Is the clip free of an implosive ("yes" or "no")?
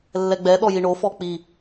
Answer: no